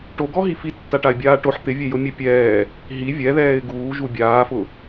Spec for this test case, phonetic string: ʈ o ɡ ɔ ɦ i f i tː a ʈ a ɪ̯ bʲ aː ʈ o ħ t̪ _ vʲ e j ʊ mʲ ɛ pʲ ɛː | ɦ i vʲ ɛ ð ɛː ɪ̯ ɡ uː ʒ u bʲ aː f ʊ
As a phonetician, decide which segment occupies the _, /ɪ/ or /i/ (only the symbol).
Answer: ɪ